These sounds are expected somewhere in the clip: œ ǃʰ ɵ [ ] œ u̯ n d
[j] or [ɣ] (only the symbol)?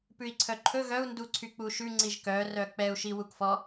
ɣ